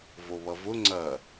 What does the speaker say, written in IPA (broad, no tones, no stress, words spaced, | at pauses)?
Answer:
voβʌvʊ ŋ͡ǀɐ